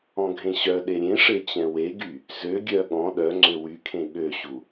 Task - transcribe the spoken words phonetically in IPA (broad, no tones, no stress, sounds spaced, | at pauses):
ɔ̃ ɡʱ ẽ ɕ œ ɗ e ɾʲ ẽ ʂ e t͡ɕ ɛ̃ w e ɡ y | z ø ɡʲ œ ɠ ɔ̃ ɗ œ ŋ͡ǀ ø w y kʰ ẽ ɠ ø ɕ u